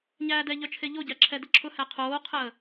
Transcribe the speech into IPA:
ɲæːdɛʎœt͡ʃʰe ʎoɟæ ǁʰɛdəǁʰʊhæ qʰoːqʰəː

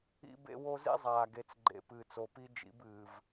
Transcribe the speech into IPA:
ḭ˦bḛ˦wo˦ zḭ˦zˤaː˨ɡe˨t͡sɡ͡ǃḛ˨ pɨː˨t͡so˨pi˦d͡ʒḭ˨˦b ɨː˨v

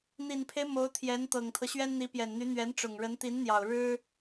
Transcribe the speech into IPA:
n̪i˨˩npʰe˦ɪ̯ mo˧˥ʊ̯t̪ʰjɛ˧˥nt̪ɤ˨˩ŋt̪ʰɤ˦ ɕɥɛ˥nn̪i˧˥pjɛ˨˩nn̪y˧˥ n̪ɥɛ˧˥nʈ͡ʂʊ˨˩ŋɻə˧˥n t̪i˧˥nn̪jɑ˨˩ʊ̯ ɻɻ̩˥

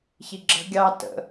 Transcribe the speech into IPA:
çiɡ͡ǁə̤ ɡʲɑ tə̰

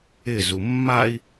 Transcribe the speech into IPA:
ɪzu mːai̯

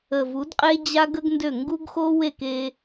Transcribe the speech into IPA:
ə˨vu˨˦dqʼe˦ d͡ʑa˦ɡə˦ɡndø˦˨ ŋɡu˦ɡxo˦ we˦˨ke˦

